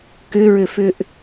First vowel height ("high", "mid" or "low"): high